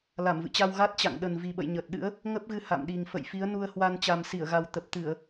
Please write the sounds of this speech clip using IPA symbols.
l a˧˩ m v ɨ̰˧˨ t͡ɕ a˧ w ɣ a˦˥ t̚ t͡ɕ a̰˧˨ ŋ ɗ ə˨˩ n v i˨˩ ɓ ə̰˧˨ j ɲ əː˨˩ t̚ ɗ ɨ̰˧˥ ə̯ | ŋ ə˦˥ p̚ ɣ ɨ˧ h a̰˧˨ m ɗ i˨˩ ŋ f ə̰˧˨ j f i˨˦ ə̯ n u˧ ə̯ h w a˧ n t͡ɕ a˨˩ m s i˧˩ ə̯ ɣ a˨˩ w t̪ ə˨˩ p̚ t̪ ɨ˧˩˨ ə̯

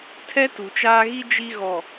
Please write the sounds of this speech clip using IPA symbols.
tʰ ɛ˦ t u˨ t͡ʃ aː˦ ɣ i˦ d͡ʒ i˦ ɣ ɔ˨

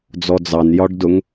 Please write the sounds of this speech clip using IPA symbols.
d͡z ɔ d͡z ɑ n j ɒ ɖ d ʊ ŋ

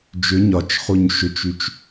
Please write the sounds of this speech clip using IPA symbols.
d͡ʒ ʏ ɲ ɒ t͡ʃ χ u ɲ ʃ ʏ t͡ʃ y t͡ʃ

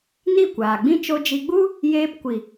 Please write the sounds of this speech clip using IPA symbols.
n i˦˨ kʷ aː˨ ɡ͡b ĩ˦ t͡ʃ o˧ d͡ʒ i˧ ɡ͡b u˦ | j eː˧ p kʷ i˨

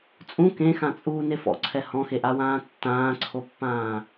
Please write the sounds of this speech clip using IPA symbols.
t͡sʼ ũ k ẽ x ã t͡sʼ uː n e f ɔ̰ ǀʰ ɛ h ɔ̃ x e ʔ a w ãː tː ãː ǀʰ o pː ãː

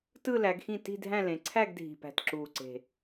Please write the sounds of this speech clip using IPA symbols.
t ɯ˥˧ l æ˩˧ ɡ x ĩ˥˩ t i̤˥˧ dʱ æ̃˥˧ l ẽ˩˧ ǀʰ æ˥˧ ɡ dʱ i̤˨˩ p æ̤˨˩ t ǁ uː˨˩ ǀ e̤˨˩

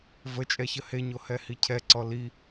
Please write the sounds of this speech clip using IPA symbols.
v ə t͡ʃʼ ɛ ç ə h e ɲ o h ɛ h i cʰ ɛ ǀ ɔ l i

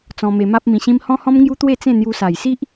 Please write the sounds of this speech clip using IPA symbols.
t͡s ɔ̃˧ m e˧ m a˦ p̚ m ĩ˧ ɕ ĩ˦ m h ɔ̃˦ h ɔ̃˦ m ŋ j u˦ t̪ w e˥˧ t͡s ẽ˥˧ n̪ j u˦ s a˧ j s i˦ ʔ

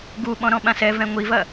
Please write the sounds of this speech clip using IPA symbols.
ɡ u ɓ ɔ̃ ɾ ɔ̃ ɓ ã s ɛ v ɛ̃ ŋʷ i v ɐ

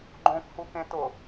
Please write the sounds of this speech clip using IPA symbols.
ɡ͡ǃ õ k h u k ẽ t ʊ

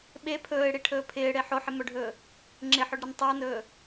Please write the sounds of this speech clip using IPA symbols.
ɓ e pʰ ɵː ɪ̯ ɽ i ʈʰ ɵː pʰ ɪː ɽ e ħ o ħ ɪ m ɵ ɖʱ ɵː | ŋ͡ǁ ɪ ħ ɵ ɖ ɾ ɪ n tˤ ɵ ʊ̯ n ɵː

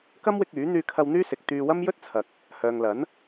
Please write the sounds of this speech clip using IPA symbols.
k ɐ˥ m w ɪ˧ k̚ yː˨˥ n̪ yː˧ kʰ ɐ˧ w n̪ yː˥ s ɪ˨ k̚ t̪ yː˧ w ɐ˥ m j ɵ˥ t̚ t͡sʰ ɐ˨ k̚ | h œː˨ ŋ l ɐ˨˥ n

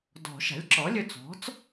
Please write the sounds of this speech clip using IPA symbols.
d ɔ̤˨˩˦ ʃ a̤˩˥ lʲ ǁ ɔ˩˥ lʲ ɵ˧ t͡s ɔ̤˩˥ t͡s

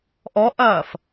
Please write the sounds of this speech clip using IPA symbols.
ʔ ɔ ʔ ɐː f

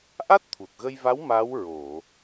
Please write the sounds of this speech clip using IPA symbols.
ʔ a˦˥ t̚ t̪ʰ u˨˩ t̚ ɣ ə˧ j v a˧˥ w m a˧˥ w ɹ o˨˩˨

